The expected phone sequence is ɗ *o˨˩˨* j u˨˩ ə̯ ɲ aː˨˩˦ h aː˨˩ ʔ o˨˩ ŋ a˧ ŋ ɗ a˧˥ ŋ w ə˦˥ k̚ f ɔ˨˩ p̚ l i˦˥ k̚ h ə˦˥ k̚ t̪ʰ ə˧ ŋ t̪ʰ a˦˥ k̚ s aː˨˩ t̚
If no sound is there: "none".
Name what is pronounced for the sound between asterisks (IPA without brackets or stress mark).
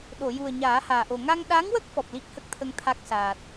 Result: o˨˩˨